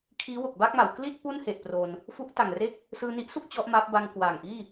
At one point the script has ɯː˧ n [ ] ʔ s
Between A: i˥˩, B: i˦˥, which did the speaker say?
B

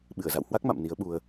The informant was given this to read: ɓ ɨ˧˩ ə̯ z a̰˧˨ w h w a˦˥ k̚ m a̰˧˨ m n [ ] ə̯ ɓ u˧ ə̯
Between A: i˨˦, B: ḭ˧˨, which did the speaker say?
A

